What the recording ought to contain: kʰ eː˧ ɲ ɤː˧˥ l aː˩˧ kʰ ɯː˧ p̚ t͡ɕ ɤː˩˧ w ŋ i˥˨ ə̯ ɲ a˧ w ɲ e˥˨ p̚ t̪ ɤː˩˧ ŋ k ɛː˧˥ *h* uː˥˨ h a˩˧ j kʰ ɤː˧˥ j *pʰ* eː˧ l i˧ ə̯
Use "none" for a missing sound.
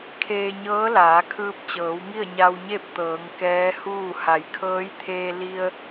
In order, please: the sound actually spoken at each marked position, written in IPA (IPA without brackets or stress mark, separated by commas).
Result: h, t̪ʰ